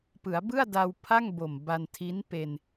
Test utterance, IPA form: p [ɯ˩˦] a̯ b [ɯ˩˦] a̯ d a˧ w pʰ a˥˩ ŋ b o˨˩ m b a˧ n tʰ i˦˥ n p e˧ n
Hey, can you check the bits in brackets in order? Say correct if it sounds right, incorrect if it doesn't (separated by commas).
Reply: correct, incorrect